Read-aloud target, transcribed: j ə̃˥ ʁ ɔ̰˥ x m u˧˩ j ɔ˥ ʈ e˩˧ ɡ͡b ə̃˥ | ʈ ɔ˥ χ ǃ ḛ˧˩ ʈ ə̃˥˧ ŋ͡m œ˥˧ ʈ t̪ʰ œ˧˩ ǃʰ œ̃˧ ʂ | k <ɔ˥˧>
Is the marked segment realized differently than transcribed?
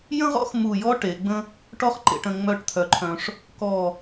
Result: yes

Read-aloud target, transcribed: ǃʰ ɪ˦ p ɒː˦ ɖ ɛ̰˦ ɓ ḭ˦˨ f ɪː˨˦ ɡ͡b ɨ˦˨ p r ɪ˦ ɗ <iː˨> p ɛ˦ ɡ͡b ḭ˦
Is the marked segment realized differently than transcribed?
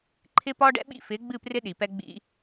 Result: yes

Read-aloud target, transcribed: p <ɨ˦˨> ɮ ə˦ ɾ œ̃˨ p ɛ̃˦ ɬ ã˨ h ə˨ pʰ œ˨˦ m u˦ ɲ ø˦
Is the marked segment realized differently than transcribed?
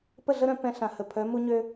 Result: yes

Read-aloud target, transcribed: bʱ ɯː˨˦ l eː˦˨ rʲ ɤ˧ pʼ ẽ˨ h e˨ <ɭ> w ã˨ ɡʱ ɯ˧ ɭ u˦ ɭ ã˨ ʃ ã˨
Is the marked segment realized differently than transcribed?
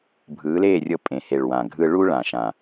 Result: no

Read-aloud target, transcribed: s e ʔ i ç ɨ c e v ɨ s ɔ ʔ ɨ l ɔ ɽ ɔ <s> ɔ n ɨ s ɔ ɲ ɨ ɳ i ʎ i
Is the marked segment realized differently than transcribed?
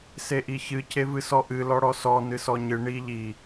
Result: no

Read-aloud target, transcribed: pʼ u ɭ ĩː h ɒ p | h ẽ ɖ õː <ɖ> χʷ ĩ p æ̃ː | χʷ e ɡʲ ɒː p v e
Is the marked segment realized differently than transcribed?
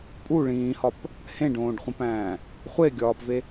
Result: no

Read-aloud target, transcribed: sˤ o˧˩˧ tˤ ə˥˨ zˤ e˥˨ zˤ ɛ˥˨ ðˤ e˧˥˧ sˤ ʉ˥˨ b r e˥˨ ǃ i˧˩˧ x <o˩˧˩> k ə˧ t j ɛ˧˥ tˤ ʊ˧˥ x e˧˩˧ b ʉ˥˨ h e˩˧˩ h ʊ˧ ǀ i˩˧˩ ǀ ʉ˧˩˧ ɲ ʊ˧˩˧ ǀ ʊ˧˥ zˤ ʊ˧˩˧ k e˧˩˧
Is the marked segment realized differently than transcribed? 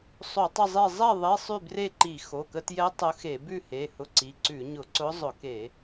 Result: no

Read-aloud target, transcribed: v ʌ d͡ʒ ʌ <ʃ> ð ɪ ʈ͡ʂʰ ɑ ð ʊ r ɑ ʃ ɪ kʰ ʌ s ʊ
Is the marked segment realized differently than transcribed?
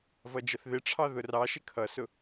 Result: yes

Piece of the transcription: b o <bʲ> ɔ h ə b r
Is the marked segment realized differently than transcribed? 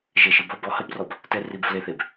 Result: yes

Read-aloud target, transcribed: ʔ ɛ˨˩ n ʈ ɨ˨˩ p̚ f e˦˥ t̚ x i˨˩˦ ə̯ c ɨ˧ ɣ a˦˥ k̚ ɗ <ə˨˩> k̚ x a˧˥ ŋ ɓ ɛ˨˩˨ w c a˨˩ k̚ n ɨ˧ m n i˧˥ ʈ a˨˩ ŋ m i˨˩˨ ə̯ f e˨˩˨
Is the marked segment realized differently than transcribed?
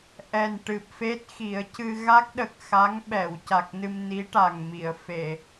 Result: no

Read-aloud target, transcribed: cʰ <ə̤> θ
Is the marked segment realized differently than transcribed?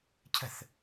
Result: no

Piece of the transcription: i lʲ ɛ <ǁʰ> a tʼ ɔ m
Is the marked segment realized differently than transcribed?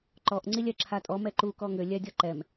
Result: no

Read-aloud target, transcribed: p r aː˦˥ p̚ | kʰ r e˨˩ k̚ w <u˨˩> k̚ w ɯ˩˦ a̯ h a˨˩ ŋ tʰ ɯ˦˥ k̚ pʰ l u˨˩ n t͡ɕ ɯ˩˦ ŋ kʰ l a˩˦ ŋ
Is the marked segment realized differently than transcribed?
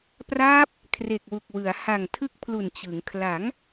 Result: no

